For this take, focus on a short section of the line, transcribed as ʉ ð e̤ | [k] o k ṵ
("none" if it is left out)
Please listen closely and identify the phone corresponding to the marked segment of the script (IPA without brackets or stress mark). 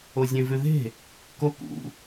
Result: k